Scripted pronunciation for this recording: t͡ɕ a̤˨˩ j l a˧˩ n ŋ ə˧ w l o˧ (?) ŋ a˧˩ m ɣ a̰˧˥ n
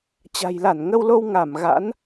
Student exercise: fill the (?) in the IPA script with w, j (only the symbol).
w